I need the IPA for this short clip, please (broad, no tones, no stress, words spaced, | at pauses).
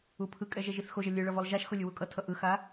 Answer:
upʰɯkʼɛ ʒɛʒiθxoʒʌ lʲɯɭʌ volˠʒaʃxo lʲuwukʼʌtʰʌ ʔɯxa